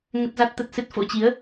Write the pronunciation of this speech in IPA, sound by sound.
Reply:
ŋə˦˥t̚za˦˥t̚t̪ə˦˥t̚sɨ˦˥t̚ fo̰˧˥t͡ɕi˨˦ə̯

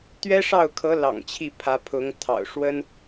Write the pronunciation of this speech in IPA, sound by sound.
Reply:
t̪ɥɛ˥ʂɑ˥˩ʊ̯kʰɤ˧˥ lɑ̰˨˩ŋt͡ɕʰi˥˩ pʰä˧˥pʰʊ˧˥ŋt̪ʰɑ̰˨˩ʊ̯ ʂwə˥n

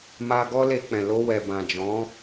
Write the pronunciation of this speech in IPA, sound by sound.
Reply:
ma˧ɡɔ˦le˧k͡pɛ̃˨ lo˧wɛ˨ bã˨ d͡ʒɔ̃˨˦

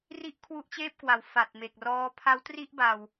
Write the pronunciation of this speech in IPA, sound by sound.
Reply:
ri˥˩ʔkʰwu˦˥ʔt͡ɕeː˥˩p̚kwa˩˦w fa˨˩t̚me˨˩k̚rɔː˦˥ pʰa˦˥wtri˥˩ʔba˨˩w

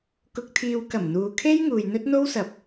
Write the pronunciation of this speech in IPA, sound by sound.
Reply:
kʊ˨k̚t̪ʰiː˨wkɐ˨˩m n̪uː˨kʰe˥j ŋuː˨jn̪ɵ˥t̚n̪o˥wsɐ˨p̚

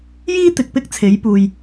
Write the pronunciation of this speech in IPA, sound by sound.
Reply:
jiː˥t̪ɪ˨k̚ pɪ˥k̚t͡sʰe˨˥j puː˨j

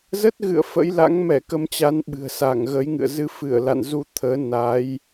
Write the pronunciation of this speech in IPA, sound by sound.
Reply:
zə˦˥t̚ɣɨ̰˧˨ə̯ fə̰˧˥j la̰˧˥ŋ mɛ˧˩kə˧mt͡ɕa˨˦n ɓɨ̤˨˩ə̯sa˧˩ŋ ɣə˨˦jŋɨ̰˧˨ə̯ zɨ˧fɨ˧˩ə̯la̰˧˨n zu˧t̪ʰəː˨˦ na˨˦j

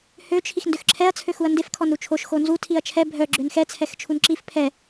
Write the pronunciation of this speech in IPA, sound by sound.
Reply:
høt͡ʃʰix ndøxǁʰɛɐ̯t͡sʰø xuɐ̯ndefkʰɔn ɾut͡ʃʰoʃxo nzu tʰiɐ̯t͡ʃʰɛ bʱœ ɡ͡ǁønxɛt͡sʰɛxt͡ʃʰun ǁif pʰɛ

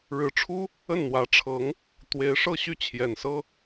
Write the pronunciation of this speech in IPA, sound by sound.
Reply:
ɻɻ̩˧˥ʈ͡ʂʰu˥ | ə˥˩nn̪wä˧˥ʈ͡ʂʰɤ˧˥ŋ | t̪we˧˥ɪ̯ʂɤ˥˧ɕy˥˩ t͡ɕʰjɛ˨˩nsɤ˥

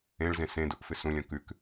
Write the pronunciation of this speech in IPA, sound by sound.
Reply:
ẽɭzẽ sẽduʔ fɨsũlʲɔ̃ kʉk

